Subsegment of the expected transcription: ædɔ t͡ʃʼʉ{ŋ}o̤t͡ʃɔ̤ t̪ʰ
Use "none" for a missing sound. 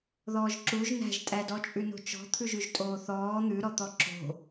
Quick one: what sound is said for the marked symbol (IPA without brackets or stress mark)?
n